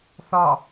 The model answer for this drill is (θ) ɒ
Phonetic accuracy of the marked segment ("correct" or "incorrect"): correct